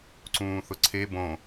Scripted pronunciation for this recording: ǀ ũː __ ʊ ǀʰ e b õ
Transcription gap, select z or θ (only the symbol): θ